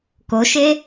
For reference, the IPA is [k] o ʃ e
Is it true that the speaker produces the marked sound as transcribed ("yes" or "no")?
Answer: yes